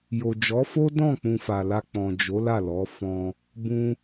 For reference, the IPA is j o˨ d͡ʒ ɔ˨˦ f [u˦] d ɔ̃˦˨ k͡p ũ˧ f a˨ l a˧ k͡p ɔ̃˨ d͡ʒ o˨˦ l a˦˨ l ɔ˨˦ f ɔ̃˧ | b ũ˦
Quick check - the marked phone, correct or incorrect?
incorrect: o˦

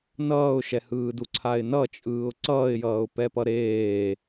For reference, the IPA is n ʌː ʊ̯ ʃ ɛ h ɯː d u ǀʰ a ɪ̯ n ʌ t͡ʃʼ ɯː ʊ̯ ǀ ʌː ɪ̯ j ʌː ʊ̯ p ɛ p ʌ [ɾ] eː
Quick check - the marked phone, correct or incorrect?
correct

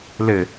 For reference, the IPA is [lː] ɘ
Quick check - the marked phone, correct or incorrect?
incorrect: l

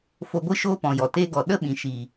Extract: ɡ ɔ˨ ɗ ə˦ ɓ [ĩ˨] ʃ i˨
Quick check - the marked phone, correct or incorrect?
correct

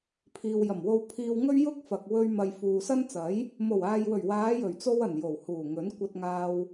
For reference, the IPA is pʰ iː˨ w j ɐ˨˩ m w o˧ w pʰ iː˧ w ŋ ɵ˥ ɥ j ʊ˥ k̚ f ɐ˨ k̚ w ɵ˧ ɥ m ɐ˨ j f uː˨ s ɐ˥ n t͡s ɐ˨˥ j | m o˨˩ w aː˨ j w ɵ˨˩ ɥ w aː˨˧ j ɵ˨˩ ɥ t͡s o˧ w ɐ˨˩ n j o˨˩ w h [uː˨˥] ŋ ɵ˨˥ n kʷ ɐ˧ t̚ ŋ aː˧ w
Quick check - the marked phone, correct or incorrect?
incorrect: uː˨˩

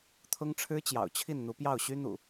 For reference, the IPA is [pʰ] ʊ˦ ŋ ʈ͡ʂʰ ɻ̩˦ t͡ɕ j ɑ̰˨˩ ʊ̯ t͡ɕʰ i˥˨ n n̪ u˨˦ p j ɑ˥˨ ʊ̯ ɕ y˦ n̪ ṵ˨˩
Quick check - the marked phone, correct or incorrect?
incorrect: t̪ʰ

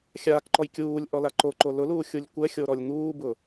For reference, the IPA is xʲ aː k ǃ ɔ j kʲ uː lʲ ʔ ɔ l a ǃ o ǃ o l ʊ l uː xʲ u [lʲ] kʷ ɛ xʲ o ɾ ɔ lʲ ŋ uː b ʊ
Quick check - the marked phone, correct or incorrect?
correct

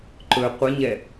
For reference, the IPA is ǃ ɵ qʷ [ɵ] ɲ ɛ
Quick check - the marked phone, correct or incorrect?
incorrect: ə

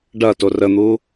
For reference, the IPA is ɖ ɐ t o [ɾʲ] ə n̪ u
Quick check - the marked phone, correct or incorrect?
incorrect: r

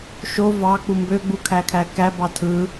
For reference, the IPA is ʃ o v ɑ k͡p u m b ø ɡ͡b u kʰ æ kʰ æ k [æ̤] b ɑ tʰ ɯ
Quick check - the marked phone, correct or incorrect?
incorrect: æ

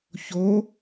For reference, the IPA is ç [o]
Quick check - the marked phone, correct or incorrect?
correct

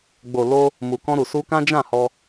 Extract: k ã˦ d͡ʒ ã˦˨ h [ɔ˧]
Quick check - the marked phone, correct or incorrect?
correct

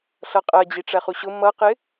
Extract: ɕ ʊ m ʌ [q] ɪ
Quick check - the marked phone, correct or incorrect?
correct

